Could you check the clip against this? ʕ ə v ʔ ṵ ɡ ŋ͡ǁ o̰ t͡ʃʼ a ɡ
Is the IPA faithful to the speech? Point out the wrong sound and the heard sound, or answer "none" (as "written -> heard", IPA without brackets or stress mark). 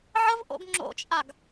ṵ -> o̰